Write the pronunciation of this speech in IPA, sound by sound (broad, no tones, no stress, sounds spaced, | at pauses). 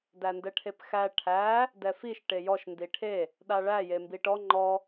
d æ n d ɛ ʈʰ e p x æ ʈʰ æ | d ɛ f i ʃ ʈ e j ɔ ʃ n d i ʈʰ e | ɗ a ɭ æ j e m b i ʈ ɔ ŋ͡ǃ ɔ